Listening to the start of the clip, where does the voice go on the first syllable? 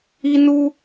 high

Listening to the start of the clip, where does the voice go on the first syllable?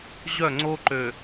falling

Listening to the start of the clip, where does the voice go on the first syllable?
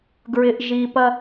low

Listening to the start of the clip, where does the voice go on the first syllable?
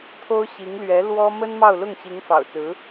high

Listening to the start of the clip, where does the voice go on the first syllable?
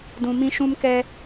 low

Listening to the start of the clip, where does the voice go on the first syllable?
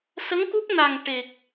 rising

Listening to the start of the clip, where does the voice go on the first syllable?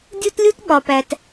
high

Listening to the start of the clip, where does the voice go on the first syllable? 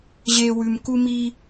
low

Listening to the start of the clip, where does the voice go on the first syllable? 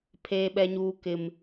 high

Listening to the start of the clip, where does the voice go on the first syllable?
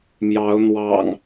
rising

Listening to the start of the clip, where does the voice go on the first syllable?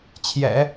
low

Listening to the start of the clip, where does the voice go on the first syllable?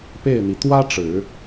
falling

